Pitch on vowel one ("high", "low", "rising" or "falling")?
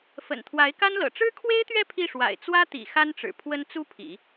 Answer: low